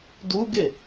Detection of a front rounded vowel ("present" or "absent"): absent